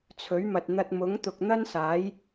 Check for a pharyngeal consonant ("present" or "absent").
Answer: absent